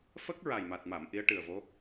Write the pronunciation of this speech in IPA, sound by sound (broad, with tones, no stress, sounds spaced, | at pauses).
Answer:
f ə˦˥ k̚ ɹ a˨˩ j m a˨˩ t̚ m a˨˩˨ m ʔ i˧˥ ə̯ ʈ ɨ˨˩ ə̯ v o˧˥